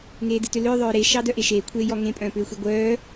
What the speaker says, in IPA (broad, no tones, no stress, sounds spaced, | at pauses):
ŋ eː d ɨ t ʏ l ʏː ðˤ œː ɾ e ʃ ɑ d œ ʔ e ʃ eː kʷʰ eː j ɔ ŋ ẽ pʼ œ̃ː p ʏː xʷ e ɡʷ œː